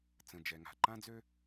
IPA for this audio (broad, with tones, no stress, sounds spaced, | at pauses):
t͡s ə̃˩ d͡ʒ ɛ˩ ŋ a̤˩ ǃ ã˥ d͡z ø˥